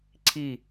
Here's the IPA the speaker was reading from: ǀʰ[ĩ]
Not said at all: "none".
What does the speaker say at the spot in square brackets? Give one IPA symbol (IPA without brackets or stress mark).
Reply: i